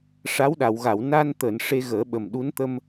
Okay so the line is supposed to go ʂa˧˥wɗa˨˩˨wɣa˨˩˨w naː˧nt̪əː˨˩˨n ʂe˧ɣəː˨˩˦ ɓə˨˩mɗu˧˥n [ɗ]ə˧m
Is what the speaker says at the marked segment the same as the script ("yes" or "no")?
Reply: no